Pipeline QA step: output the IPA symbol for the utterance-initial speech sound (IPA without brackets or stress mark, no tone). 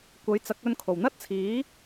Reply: kʷ